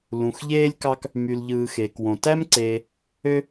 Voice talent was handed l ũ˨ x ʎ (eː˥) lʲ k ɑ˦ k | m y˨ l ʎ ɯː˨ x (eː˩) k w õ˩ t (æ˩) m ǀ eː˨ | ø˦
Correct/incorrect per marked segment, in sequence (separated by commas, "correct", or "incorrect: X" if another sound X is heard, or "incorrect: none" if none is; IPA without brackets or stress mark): correct, correct, incorrect: æ˥